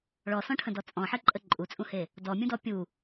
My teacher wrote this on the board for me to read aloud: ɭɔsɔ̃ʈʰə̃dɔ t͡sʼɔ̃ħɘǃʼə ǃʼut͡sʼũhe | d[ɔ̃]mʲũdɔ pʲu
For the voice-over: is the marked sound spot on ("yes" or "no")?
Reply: no